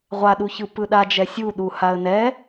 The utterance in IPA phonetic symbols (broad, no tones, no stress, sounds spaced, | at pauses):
ʁʷ a ɗ u ç ɯ p ɯ ɗ a d͡ʒ ɛ sʲ u ɗ u h a ə̯ n ɛ